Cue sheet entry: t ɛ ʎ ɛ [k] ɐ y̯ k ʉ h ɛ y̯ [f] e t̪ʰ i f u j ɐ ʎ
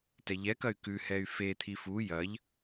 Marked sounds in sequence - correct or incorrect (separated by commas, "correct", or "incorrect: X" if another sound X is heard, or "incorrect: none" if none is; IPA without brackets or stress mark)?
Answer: correct, correct